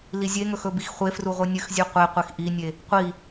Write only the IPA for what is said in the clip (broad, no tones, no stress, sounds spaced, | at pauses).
l i zʲ e ŋ ɵ x ɵ b i x χʷ e f r u ʁʷ ɨ nʲ ɨ x zʲ ʉ qʷ e qʷ e x ʔ i nʲ e | qʷ i